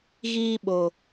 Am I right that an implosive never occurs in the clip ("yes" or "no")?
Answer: no